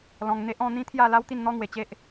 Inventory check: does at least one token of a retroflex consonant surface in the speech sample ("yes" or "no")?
no